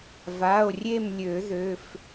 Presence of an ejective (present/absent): absent